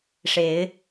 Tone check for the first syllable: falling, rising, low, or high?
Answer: rising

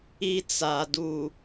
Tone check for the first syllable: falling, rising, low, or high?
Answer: high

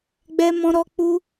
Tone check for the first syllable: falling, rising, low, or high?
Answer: high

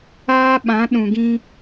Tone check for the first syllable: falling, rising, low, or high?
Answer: high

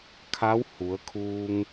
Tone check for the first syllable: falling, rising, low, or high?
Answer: rising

